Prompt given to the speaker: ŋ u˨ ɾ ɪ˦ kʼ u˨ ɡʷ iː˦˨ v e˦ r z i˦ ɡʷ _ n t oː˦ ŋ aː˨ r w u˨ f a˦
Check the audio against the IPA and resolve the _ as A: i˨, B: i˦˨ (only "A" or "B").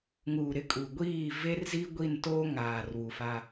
B